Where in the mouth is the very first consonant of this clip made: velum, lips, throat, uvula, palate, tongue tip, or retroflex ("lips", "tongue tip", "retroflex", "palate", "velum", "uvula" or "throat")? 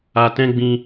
tongue tip